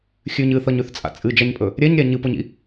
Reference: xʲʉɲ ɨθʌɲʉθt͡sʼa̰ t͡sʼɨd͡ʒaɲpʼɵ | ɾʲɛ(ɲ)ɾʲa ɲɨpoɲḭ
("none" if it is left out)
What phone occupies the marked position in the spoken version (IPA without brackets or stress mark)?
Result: ɲ